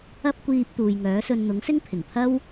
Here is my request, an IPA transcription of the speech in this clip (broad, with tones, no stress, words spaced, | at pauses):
ɐ˥p̚kʷiː˧p̚ t̪uː˨jŋœː˨˥sɵ˧n n̪ʊ˨˥ŋsɪ˥ŋpʰɪ˨˩ŋpʰɐ˥w